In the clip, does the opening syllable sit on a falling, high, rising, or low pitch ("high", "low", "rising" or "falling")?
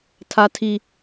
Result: high